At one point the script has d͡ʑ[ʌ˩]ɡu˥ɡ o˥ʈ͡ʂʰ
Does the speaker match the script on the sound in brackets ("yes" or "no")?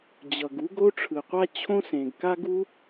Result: yes